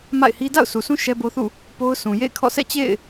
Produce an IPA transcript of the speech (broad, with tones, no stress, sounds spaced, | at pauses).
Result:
m a̰˦˨ ɪ̯ h i˦ d a̰˦˨ ʊ̯ s u˨ sʰ ũ˦ ʃ ɛ˦ b o˦ θ ṵ˦˨ | p o˦ ʊ̯ sʰ ũ˨ j ḛ˦˨ ɪ̯ kʰ ɔ̰˦˨ s ɛ̰˦˨ t͡ɕ ḛ˦˨ ɪ̯